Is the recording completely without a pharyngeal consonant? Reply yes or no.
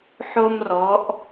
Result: no